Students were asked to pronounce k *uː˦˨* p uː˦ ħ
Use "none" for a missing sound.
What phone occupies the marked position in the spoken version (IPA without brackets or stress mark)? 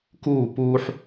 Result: uː˦˨